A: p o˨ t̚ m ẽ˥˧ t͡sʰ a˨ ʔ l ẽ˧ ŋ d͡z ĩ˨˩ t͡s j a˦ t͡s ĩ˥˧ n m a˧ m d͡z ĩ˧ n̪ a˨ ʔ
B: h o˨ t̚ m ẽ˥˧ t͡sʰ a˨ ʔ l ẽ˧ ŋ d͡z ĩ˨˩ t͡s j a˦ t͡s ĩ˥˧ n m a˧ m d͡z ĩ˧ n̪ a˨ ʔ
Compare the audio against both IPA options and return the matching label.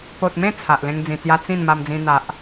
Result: A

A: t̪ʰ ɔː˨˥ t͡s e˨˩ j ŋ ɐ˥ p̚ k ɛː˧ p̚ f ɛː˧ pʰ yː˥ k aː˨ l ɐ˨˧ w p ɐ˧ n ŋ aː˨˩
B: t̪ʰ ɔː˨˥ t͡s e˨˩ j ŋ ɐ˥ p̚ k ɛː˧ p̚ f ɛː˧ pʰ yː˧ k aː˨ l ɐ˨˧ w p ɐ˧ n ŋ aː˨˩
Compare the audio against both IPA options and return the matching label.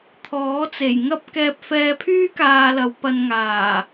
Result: A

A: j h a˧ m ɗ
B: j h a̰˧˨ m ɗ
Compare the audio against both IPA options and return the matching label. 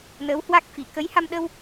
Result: A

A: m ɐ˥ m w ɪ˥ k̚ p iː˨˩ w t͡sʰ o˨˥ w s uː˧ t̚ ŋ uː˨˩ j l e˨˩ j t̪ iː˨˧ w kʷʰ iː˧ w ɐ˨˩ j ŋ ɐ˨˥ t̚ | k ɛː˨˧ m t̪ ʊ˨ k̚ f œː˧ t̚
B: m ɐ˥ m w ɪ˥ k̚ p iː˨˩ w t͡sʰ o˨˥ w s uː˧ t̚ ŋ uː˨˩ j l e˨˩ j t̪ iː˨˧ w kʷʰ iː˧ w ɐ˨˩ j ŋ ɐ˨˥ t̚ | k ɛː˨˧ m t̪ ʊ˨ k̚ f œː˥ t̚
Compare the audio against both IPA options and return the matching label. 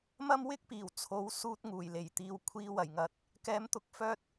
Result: A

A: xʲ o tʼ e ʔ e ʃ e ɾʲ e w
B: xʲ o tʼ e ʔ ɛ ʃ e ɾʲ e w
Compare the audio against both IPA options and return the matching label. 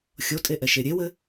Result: B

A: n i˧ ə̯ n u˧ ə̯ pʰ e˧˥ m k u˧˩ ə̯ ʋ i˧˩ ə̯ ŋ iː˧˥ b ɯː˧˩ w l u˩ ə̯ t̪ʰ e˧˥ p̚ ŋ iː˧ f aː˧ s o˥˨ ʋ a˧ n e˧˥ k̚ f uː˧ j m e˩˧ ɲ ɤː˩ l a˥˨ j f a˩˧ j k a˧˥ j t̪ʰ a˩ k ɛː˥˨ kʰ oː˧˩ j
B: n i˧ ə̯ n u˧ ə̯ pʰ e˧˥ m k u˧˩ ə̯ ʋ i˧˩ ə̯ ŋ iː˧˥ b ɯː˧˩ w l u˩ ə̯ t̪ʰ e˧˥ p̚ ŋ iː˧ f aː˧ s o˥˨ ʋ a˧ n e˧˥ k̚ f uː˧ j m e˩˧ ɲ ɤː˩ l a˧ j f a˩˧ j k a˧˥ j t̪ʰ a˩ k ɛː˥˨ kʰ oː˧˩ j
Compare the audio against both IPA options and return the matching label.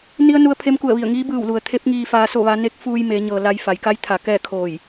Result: B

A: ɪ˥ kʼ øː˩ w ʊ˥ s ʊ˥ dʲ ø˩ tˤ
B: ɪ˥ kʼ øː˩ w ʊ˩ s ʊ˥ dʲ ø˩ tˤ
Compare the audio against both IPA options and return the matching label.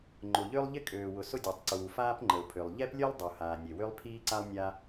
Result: B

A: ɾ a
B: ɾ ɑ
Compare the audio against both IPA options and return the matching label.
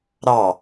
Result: B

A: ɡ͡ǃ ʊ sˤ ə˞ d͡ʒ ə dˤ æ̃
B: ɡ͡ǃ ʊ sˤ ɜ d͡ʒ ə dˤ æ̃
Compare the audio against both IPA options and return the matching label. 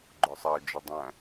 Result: B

